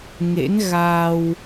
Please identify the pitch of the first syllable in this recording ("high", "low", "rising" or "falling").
rising